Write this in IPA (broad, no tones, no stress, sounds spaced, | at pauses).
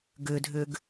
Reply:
ɡ ʏ dʱ ʏ ɡ